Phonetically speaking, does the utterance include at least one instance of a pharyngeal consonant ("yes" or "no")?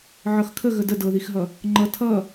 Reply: yes